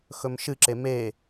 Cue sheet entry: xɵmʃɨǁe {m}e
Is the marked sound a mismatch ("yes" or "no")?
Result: no